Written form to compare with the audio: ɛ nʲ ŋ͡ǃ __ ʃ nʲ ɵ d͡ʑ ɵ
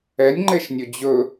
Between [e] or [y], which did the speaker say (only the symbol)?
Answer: e